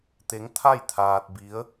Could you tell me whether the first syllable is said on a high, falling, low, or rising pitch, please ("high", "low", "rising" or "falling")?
rising